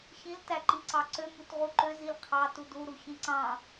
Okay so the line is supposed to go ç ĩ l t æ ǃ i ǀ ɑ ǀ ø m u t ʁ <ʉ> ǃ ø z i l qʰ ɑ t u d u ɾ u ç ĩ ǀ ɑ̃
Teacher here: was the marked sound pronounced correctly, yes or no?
no